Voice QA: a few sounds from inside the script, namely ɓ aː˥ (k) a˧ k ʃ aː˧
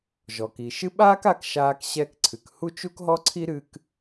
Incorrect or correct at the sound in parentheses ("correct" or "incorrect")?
correct